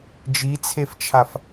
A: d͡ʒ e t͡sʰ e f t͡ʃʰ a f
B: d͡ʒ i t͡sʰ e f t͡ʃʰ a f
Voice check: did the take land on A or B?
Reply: B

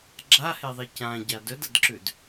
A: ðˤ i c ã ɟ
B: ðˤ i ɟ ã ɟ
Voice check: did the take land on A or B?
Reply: A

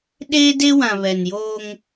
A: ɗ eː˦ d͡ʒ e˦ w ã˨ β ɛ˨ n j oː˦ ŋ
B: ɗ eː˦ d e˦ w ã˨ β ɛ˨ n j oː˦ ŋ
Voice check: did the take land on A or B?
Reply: B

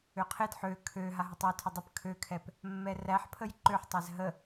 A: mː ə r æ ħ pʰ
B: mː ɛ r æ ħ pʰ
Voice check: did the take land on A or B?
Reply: B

